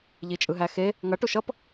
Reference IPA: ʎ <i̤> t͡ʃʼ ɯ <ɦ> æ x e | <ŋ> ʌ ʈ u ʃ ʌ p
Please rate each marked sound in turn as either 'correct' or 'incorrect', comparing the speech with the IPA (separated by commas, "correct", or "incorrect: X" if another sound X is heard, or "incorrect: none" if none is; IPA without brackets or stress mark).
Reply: incorrect: i, correct, correct